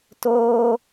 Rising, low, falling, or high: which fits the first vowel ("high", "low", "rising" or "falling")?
high